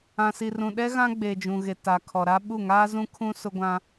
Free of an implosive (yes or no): no